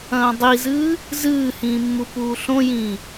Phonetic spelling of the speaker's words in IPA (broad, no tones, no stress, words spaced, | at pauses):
ɐ̃ːdˤizɨː | zɨːhĩː mːupuːɬõjĩː